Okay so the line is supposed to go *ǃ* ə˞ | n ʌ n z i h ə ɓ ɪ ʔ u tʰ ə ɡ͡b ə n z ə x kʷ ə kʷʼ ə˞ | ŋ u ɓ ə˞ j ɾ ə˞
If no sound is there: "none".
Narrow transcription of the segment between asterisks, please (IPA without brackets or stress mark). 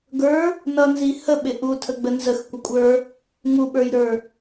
ɡ